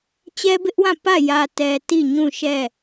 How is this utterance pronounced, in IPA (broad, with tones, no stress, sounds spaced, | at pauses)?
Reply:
t͡ɕ ɛ˦ b ɪ˦ ʔ w ã˦˨ p ä˦˨ j ä˨ t ɛ˨ t i˦˨ ɲ ũ˦˨ ʃ ɛ˦˨